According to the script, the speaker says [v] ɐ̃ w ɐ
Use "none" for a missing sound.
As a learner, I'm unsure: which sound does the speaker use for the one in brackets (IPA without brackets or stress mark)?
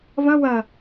v